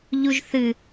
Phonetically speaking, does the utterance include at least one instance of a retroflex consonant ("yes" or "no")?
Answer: no